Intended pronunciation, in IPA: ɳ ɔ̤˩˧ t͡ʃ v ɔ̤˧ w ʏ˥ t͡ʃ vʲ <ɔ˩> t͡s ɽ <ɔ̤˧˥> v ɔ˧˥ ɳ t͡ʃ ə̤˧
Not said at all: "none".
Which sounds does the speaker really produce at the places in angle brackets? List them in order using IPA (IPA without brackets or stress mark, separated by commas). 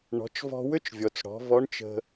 ɔ˩, ɔ̤˩˧